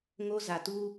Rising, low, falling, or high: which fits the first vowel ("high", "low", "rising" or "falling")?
high